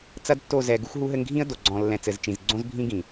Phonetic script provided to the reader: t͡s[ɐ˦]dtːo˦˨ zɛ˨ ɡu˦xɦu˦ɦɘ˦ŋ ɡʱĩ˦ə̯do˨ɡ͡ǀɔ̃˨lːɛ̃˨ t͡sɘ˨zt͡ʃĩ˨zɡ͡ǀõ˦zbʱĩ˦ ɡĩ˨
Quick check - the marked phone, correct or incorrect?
correct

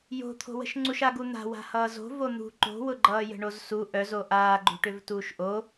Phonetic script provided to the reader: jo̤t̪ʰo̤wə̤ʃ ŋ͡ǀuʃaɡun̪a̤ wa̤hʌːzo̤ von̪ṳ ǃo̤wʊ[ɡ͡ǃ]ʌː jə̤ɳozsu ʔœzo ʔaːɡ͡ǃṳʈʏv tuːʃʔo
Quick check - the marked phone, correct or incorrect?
correct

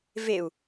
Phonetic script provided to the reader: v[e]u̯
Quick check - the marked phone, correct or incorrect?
correct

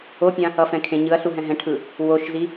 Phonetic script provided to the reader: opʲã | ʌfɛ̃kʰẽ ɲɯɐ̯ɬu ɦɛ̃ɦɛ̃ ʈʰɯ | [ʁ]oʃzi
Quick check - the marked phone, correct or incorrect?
incorrect: w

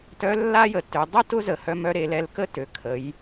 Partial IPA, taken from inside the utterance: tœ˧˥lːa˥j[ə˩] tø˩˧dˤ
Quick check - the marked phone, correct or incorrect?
correct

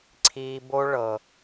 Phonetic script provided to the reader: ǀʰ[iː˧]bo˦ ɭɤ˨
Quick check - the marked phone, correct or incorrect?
correct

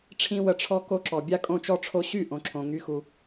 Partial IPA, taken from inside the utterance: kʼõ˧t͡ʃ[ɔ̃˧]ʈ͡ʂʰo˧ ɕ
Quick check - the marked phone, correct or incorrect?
incorrect: ɔ˧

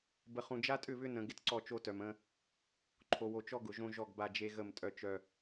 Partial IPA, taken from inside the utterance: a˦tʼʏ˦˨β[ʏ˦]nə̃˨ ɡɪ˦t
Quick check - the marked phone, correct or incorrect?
correct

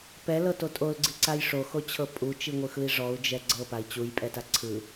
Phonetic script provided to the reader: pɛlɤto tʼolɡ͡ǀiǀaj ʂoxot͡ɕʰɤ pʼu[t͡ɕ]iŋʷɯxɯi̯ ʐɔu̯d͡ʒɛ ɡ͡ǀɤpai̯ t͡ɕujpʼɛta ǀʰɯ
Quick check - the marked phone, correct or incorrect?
incorrect: t͡ʃ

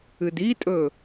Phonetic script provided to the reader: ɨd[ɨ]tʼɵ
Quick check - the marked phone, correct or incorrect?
incorrect: i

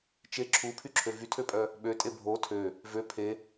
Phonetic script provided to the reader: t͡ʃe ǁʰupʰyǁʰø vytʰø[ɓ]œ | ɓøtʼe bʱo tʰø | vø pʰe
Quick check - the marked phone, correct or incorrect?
incorrect: pʼ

